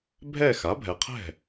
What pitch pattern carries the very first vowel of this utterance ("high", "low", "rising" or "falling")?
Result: falling